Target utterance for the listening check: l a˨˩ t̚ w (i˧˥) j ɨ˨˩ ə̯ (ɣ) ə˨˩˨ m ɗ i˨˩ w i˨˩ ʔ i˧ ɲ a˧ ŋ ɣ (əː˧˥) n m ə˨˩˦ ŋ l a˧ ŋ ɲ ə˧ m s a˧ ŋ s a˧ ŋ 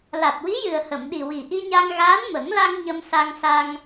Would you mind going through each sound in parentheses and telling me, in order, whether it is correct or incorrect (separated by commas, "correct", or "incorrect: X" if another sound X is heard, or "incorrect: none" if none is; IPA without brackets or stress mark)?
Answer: correct, incorrect: h, incorrect: aː˧˥